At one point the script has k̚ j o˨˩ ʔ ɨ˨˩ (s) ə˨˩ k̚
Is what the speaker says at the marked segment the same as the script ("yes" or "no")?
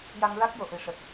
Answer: no